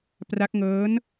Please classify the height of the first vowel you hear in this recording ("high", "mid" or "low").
low